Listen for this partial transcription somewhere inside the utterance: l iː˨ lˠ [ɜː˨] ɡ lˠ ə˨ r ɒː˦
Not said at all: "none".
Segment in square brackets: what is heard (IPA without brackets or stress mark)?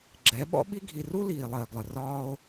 ɜː˨